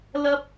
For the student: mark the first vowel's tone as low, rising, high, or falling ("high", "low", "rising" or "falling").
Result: high